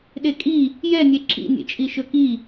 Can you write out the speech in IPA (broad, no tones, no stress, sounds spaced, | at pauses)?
ɗ e kʼ i | j ɛ nʲ e ǁ ḭ nʲ ḛ t͡ʃʼ i ʃ ɵ k i